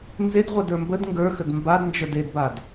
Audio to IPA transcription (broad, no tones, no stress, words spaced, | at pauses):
nzedʁʷadə˞ mbəd ŋɡə˞xəd mbadnd͡ʒə˞d edbad